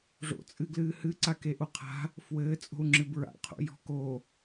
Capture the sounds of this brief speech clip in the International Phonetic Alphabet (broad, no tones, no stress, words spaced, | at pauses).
ʐo̰ t͡sʼɨɡlɨːhɨǀa keʔoqʰa̤ | fwɘːt͡sʼo̤u̯ ŋ͡ǁɨbɹa̰qʰo̰ jɔ̤ko